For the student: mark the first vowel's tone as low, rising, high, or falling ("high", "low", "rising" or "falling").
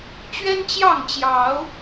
high